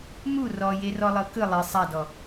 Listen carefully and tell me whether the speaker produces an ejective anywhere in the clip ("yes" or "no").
no